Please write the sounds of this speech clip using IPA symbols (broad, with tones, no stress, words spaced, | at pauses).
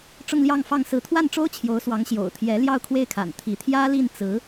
ʈ͡ʂʊ˥˧ŋljɑ˥˧ŋfɑ˥˩ŋ sɹ̩˧˥t̪ʰwa˥˩nʈ͡ʂo˥ʊ̯ t͡ɕʰjo˧˥ʊ̯swɑ˧˥ŋ ɕjo̰˨˩ʊ̯t̪ʰjɛ˧˥ ljɑ˥˧ʊ̯kʰwe˥˩ɪ̯kʰa̰˨˩n t̪ʰi˧˥ t̪ʰjä˥li˥˩nt͡sɹ̩˧˥